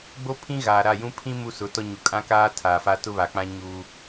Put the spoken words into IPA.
ɡ͡bo˦pʰĩ˦ ɣaː˨ɾa˦˨ jũ˦ pʰĩ˦ mu˦sʊ˨˦tɔ˦ ɲu˨kʼã˦kaː˦ tʰaː˨fa˦ tʊ˦βa˨k͡pã˦ ɲuː˦

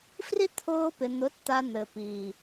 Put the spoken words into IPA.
fri˦t̪ʰʊː˧pɪ˨n̪ʊ˨˦t t̪a˧n̪ɘ˨piː˨

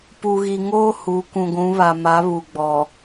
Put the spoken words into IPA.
pu˨ɣi˨ŋoː˦ hu˨˦ kũ˨ɡʷũ˨˦βa˨ ma˨˦ βu˨ɡ͡bɔ˨

